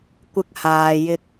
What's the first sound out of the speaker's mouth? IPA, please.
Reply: kʷ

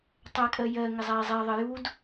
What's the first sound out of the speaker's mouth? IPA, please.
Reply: tˤ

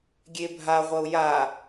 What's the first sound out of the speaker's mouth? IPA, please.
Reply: ɡʲ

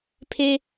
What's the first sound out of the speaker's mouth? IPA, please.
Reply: pʰ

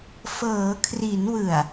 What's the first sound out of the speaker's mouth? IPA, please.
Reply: f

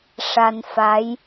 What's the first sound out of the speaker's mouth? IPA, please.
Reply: ʂ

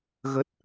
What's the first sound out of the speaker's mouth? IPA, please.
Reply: ɣ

